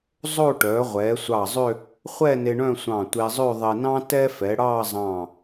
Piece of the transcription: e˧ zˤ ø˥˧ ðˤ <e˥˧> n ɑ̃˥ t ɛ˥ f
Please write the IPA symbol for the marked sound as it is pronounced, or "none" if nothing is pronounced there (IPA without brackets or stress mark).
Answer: e˧